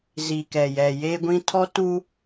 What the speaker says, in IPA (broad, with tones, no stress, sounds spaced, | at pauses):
z i˨ k ɛ˨ j ɛ˨ j eː˦ ɡʷ ĩ˦ tʰ ɔ˦ t uː˦